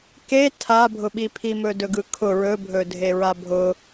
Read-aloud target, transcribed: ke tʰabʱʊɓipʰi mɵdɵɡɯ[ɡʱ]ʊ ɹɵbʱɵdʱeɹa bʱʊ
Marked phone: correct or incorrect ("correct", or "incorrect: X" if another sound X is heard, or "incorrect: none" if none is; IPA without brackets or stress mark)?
incorrect: kʰ